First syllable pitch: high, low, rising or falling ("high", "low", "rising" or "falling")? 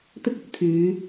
high